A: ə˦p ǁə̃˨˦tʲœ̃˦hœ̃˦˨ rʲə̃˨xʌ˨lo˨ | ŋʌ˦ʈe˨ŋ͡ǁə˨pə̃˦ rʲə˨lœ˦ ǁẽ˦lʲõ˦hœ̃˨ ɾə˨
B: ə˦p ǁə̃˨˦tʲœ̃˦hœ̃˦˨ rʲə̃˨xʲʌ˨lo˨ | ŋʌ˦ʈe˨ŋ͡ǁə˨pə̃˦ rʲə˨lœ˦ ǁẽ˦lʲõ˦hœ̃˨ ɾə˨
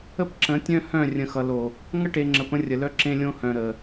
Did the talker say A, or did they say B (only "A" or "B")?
A